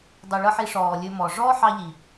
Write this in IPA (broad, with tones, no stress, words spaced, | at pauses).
dˤu˨ɭɤ˦ħi˧ ʂɔː˨lʲɵ˧mɔː˨ ʐɔː˦ħɑ˧ ʎi˨